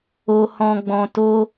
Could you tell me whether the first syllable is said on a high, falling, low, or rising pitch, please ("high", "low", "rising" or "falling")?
low